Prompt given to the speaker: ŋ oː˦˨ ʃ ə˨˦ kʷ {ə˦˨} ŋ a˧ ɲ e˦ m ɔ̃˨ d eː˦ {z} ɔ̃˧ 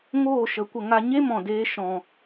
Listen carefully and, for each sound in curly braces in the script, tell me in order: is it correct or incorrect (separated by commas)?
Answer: incorrect, incorrect